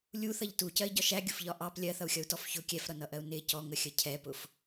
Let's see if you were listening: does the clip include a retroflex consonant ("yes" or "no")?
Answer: no